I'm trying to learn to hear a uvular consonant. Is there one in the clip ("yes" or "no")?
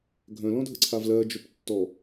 no